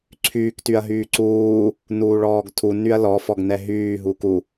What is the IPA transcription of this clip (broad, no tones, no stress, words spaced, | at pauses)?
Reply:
ǀʰyːktyɐ̯ ɦyːǀuː | nuːɭɔːɡtʰu nyɐ̯lɔfɔɡ nɛɦyːɦuːk u